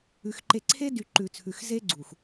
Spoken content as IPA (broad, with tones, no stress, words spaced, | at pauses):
ʉ˨x ǃe˨ǀʰe˦dy˨ ǃʉ˨t͡sʰʉ˨xze˦ɡ͡ǀu˨x